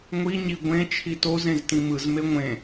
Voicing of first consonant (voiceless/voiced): voiced